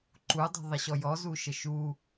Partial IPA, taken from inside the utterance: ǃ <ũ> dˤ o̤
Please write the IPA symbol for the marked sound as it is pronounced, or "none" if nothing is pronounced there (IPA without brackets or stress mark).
u